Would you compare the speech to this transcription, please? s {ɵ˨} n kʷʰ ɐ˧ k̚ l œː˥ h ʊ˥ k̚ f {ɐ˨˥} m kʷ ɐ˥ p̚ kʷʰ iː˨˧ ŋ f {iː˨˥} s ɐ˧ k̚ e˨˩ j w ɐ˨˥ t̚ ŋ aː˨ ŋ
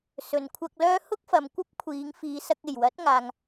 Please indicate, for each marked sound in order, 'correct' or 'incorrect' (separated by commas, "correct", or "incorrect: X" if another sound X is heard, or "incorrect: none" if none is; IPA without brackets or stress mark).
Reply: correct, incorrect: ɐ˨, incorrect: iː˨˧